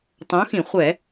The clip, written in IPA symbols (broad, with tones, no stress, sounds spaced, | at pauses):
tˤ õ˨˥ x ĩ˧˩˧ χʷ ɛ˧˩˧